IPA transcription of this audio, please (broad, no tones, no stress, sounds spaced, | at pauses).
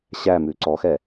ɕ æ m ʉ ǀ ɔ x ɛ